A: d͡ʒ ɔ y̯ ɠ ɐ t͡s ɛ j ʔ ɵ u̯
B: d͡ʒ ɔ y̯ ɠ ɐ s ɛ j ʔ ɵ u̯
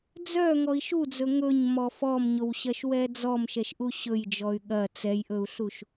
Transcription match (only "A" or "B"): A